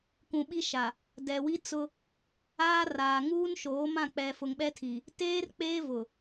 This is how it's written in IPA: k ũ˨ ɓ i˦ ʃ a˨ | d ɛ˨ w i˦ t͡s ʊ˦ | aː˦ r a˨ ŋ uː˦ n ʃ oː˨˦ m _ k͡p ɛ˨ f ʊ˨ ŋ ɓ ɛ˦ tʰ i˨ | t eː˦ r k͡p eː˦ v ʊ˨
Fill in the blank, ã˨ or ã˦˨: ã˦˨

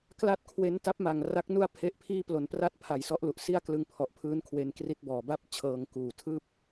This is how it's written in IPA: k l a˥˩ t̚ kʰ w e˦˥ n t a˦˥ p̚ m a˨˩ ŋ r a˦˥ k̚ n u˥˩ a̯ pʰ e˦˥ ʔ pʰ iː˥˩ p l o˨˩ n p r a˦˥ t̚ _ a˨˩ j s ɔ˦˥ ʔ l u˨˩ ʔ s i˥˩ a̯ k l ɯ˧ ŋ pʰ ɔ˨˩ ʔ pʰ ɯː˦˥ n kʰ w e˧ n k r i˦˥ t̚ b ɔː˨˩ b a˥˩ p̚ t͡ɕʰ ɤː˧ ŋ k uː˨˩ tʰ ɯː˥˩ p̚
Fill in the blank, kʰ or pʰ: pʰ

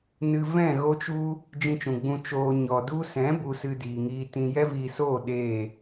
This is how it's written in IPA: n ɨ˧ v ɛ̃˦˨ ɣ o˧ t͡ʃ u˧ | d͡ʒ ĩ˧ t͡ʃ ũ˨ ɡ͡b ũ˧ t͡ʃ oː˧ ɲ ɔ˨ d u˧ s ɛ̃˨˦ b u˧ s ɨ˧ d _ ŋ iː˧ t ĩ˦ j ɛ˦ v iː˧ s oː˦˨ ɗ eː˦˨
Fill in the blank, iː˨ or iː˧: iː˨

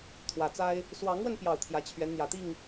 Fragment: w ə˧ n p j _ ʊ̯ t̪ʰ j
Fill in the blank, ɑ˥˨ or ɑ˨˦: ɑ˥˨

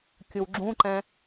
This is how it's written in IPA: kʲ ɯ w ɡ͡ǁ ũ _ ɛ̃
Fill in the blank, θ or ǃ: ǃ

